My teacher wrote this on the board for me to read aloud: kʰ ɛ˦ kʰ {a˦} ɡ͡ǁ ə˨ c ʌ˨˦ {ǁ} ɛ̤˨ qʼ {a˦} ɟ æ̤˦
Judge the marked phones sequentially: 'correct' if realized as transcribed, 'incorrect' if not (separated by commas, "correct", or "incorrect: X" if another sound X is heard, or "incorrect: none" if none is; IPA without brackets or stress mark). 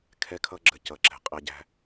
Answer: incorrect: ʌ˦, correct, incorrect: æ˦